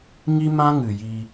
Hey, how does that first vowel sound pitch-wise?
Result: high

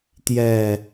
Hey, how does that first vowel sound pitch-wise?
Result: falling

